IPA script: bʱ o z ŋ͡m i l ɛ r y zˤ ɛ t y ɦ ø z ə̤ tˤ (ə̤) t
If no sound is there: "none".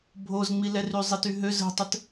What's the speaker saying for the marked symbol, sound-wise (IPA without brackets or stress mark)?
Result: ə